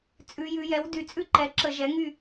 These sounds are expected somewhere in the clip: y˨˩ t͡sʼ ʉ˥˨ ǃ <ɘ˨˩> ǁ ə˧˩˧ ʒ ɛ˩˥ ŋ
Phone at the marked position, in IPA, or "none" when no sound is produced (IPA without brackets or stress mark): ɛ˨˩